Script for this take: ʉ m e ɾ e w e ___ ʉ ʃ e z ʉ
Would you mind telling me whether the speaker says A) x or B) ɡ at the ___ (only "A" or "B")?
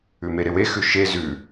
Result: A